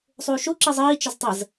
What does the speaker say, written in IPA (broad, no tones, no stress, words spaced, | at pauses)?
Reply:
sˤuːʃu ǁizˤiː t͡ʃəztˤəz